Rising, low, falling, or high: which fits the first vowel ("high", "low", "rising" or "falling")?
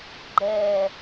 low